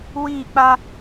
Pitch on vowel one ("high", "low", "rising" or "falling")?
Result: falling